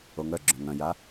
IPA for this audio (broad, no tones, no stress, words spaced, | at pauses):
oŋœɡ͡ǁœ̃ ŋœ̃ja